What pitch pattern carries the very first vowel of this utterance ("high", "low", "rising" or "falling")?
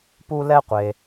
high